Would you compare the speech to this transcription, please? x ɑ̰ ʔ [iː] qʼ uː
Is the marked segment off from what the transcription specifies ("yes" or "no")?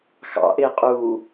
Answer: yes